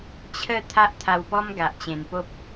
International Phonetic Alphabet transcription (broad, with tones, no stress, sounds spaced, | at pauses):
t͡ɕʰ ə˥˧ t̪ʰ a˦ ʔ t̪ʰ a˧ w p ɔ˦ m ɡ a˨ ʔ t͡ɕ ẽ˨˩ n p o˦ p̚